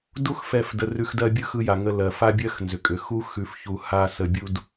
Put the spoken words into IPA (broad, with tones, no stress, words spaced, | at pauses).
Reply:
du˦x fɛ˦˨fdə˧rʉ˧xdɜ˦ bʲɯ˦xɯ˧ja˨ŋə˧ lɜ˨ fa˦bʲɜ˦xnzʏ˨kʼʏ˨ xu˦xʉ˧f çu˧ha˦ sə˧bʲu˦d